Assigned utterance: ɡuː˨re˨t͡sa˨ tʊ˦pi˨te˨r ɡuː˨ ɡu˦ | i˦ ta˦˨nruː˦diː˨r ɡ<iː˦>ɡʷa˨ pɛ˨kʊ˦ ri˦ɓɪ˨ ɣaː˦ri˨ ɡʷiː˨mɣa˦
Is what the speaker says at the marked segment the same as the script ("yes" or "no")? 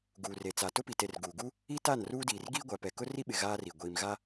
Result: yes